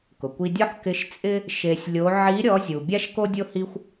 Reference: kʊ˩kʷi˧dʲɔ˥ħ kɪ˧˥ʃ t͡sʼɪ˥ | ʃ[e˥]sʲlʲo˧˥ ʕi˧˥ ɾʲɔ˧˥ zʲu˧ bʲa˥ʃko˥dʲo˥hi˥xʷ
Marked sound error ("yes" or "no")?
yes